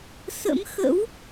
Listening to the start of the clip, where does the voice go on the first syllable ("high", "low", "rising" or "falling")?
rising